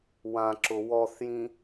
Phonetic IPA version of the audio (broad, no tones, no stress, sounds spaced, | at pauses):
w ã ǁ ʊ w ɔ θ j ĩ